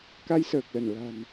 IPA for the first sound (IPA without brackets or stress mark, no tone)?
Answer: k